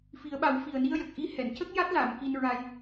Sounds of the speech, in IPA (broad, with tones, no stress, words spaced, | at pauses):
fi˨˩˦ə̯ɓa˨˩˦w fi˨˩ə̯ni˧ə̯jə˨˩k̚ ʔi˧˥hɛ˨˩˨n cə˦˥k̚ ja˦˥t̚la˨˩˨m ki˧nɹa˧j